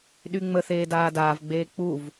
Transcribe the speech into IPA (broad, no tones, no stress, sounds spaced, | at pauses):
ɗ y ŋ͡m ə θ eː d aː d aː v ɡ͡b eː k͡p u v